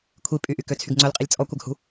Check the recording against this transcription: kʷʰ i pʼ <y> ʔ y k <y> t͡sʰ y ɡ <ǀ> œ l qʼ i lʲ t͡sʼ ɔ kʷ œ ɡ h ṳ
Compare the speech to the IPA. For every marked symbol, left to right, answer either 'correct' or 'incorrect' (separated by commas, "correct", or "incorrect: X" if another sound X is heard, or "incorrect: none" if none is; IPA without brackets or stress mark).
correct, incorrect: ø, incorrect: ŋ͡ǀ